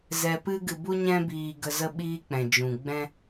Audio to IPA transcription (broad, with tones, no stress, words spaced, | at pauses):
zɛ˧pɨ˦ɡɨ˧ bu˦ɲɛ̃˦biː˧ɡə˧ zə˧ɓiː˧k͡pɛ̃˨d͡ʒũ˨ ɡ͡bɛ̃˦